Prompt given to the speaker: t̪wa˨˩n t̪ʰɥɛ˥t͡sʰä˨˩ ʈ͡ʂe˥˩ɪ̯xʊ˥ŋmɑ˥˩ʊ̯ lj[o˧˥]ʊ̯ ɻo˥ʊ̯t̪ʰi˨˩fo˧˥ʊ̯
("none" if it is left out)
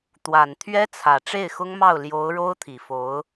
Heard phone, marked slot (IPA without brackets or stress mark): o˧˥